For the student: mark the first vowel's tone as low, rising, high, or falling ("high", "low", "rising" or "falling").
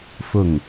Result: falling